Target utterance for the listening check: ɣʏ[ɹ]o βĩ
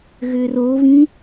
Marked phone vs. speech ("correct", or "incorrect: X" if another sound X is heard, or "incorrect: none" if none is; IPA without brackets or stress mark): incorrect: r